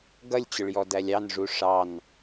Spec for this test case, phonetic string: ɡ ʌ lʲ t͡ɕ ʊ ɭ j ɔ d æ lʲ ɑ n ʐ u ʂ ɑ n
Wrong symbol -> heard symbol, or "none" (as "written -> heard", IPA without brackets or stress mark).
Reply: none